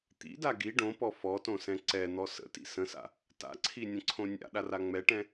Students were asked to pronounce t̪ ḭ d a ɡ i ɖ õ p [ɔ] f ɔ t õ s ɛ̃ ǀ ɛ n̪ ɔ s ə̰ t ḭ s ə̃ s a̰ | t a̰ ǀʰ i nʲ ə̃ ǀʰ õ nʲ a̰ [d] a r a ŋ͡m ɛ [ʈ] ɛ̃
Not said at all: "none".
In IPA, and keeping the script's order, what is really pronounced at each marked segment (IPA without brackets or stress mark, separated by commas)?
ɔ, ɗ, ʈ